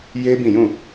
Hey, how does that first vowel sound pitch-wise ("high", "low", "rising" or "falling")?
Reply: high